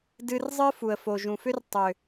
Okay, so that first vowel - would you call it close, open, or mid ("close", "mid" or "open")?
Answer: close